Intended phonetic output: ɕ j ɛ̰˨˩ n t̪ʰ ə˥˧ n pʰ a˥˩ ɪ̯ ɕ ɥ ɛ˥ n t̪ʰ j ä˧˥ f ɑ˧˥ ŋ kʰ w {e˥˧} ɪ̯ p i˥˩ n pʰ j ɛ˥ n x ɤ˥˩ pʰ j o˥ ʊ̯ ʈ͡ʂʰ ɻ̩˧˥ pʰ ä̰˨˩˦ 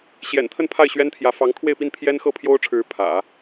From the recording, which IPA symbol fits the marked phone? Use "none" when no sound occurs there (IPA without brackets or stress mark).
e˥˧